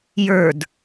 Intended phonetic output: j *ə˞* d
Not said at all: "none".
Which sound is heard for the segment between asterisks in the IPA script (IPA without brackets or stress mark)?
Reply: ə˞